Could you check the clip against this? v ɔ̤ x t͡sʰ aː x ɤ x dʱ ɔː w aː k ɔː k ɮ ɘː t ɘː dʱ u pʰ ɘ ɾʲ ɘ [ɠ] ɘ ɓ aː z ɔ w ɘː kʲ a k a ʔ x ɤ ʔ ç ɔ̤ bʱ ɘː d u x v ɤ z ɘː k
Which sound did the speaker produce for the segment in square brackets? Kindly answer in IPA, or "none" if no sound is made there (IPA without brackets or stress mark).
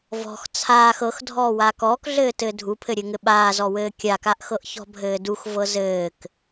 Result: ŋ